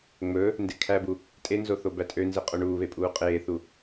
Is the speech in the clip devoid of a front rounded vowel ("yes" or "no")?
no